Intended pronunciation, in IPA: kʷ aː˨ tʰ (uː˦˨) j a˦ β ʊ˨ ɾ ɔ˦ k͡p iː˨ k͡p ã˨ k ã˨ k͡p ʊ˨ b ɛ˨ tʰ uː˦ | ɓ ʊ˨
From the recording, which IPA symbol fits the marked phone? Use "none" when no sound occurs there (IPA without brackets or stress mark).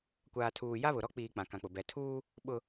uː˨